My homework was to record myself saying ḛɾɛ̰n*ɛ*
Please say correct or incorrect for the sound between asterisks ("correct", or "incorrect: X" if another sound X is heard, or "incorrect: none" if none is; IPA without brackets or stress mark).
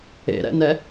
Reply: correct